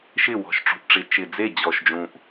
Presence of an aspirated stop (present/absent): absent